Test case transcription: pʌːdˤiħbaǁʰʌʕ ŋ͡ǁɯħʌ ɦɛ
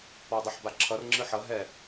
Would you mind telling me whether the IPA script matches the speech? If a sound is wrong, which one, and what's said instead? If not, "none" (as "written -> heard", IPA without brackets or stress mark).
ʕ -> r